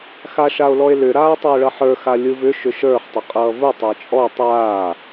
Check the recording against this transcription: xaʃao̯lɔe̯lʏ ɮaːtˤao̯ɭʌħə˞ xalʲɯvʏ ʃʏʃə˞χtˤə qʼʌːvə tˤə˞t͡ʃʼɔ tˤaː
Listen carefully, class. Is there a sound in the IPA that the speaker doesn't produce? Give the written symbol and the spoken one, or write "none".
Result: ɮ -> ɾ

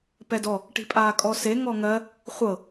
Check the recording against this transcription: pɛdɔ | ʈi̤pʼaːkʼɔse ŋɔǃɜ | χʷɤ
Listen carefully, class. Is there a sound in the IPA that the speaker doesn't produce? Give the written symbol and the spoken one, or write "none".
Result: ǃ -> ŋ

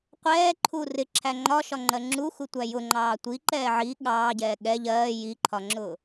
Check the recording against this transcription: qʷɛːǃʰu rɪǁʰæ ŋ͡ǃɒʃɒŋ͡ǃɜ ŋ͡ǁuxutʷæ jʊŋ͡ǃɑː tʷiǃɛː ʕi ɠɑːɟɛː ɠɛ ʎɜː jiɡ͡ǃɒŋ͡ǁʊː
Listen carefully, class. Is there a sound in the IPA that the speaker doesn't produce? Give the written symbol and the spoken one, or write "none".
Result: ɡ͡ǃ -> ǃʰ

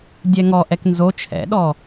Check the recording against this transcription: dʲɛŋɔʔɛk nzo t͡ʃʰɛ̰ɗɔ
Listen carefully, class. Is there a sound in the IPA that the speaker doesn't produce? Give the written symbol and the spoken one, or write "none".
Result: none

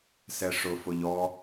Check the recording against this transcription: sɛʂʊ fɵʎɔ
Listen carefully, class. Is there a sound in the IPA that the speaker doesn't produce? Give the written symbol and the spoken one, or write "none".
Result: ɵ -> ʊ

